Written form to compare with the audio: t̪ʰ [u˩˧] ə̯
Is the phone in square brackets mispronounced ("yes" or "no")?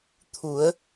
no